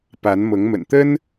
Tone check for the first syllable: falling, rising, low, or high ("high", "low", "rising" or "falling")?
rising